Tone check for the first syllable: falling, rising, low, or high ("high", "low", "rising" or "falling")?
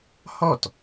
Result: falling